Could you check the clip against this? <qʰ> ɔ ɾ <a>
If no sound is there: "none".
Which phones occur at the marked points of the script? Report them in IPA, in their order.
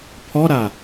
pʰ, a

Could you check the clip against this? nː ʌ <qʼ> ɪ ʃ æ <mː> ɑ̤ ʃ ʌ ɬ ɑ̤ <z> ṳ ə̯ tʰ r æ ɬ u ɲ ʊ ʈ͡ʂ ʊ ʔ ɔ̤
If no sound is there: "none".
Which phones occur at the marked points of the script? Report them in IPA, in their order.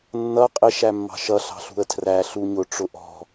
qʼ, mː, ɬ

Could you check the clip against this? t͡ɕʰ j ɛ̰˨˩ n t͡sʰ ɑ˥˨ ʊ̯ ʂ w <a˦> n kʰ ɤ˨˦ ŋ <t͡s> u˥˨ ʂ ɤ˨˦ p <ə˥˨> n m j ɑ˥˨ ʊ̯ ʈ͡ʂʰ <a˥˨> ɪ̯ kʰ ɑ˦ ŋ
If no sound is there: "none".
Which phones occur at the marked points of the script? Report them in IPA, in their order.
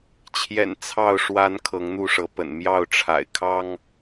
a˨˦, n̪, ə̰˨˩, a̰˨˩

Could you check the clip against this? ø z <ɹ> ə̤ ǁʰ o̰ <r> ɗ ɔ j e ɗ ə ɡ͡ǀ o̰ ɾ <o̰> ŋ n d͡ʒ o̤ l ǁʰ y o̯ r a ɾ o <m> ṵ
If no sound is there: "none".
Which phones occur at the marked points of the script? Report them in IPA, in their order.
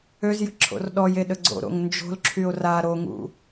j, r, o̰, ŋ

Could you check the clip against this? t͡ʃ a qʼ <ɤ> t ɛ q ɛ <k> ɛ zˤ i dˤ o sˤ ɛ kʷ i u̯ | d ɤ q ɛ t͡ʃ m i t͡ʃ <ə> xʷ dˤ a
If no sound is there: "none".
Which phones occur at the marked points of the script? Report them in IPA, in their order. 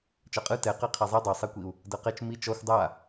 ɯ, qʰ, ɔ

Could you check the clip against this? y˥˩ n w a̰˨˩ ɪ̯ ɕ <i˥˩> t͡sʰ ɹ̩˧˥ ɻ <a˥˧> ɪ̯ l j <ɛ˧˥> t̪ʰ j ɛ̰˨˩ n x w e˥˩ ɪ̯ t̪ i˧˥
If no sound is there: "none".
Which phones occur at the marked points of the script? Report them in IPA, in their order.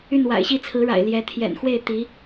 i˥˩, a̰˨˩, ɛ˧˥

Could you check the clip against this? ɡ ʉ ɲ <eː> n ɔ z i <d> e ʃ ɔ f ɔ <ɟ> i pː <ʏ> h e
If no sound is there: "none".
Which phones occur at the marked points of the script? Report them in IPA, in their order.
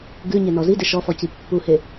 e, d, c, u

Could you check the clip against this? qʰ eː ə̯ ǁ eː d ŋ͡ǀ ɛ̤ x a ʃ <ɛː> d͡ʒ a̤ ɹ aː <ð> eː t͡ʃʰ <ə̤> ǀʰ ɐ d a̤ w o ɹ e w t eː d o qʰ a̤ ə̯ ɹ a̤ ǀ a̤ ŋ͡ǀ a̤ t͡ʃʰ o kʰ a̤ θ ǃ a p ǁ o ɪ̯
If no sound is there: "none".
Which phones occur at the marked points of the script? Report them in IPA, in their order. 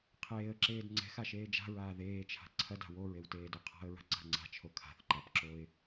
eː, ð, a̤

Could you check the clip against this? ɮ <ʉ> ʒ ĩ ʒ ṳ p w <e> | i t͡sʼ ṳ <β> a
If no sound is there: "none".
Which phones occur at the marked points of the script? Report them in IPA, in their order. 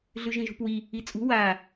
ʉ, i, w

